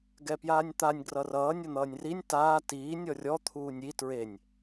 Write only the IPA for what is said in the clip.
ɡ ɛ p j aː nʲ t̪ a nʲ ɡ r ʌ r ʌː nʲ ʌ n̪ ʌː nʲ r i nʲ t aː t iː nʲ ɔ rʲ ɔ t̪ʰ uː nʲ i t ɹ e nʲ

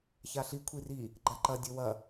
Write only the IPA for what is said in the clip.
ç a ɬ i kʷʰ i r i | ɡ͡ǃ a ǃ ɐ dʲ ɵ w ɐ

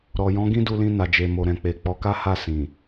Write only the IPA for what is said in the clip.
ɾ ɔ˨ j ɔ̃˨˦ ɡ ĩ˦ d u˧ l ĩ˧ n a˨ d͡ʒ e˨ m o˨ ɾ ɛ̃˨ k͡p e˨ k͡p ɔ˨˦ k a˦ h a˦˨ s ĩ˨

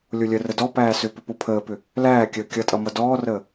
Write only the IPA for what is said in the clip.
lʲ o lʲ ə r ə d ɔ p æː s ʏ p ʏ p o pʰ əː p ʏ | l æː kʲ əː kʲ ʌ tʼ ʌ m ʌ d ɔː r əː

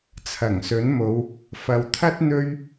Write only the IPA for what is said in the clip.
t͡sʰ ɐ˨˩ ŋ s ɵ˨˥ n m o˨˧ w | f ɐ˨ w t̪ʰ ɐ˥ t̚ n̪ ɵ˥ ɥ

